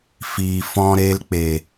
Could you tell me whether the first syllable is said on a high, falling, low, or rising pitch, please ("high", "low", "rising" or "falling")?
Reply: low